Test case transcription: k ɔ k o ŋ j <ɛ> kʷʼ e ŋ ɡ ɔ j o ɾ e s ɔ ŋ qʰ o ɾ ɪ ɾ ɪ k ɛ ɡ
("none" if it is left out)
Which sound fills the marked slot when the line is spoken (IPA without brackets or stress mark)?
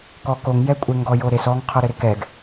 ɛ